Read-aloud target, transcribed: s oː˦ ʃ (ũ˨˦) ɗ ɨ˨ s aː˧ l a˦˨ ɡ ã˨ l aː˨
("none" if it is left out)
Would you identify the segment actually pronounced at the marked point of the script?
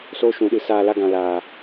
ũ˨˦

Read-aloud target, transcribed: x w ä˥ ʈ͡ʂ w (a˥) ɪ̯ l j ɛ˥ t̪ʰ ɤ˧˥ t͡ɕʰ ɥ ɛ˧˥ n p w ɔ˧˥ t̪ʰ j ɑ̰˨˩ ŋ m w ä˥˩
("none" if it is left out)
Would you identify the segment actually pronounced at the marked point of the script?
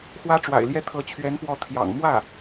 a̰˨˩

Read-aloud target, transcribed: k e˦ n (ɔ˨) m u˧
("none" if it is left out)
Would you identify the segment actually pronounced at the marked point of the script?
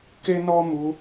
ɔ˦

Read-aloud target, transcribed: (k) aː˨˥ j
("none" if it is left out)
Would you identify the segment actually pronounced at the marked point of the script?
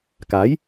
k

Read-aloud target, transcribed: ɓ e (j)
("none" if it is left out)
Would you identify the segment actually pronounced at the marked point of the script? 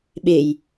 j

